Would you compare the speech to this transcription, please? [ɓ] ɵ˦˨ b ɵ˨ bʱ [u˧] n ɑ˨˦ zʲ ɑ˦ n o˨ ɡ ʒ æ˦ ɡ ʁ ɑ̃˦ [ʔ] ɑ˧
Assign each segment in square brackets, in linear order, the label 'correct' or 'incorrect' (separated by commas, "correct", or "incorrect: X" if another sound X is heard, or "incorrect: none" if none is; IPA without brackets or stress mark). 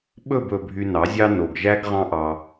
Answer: correct, incorrect: y˧, correct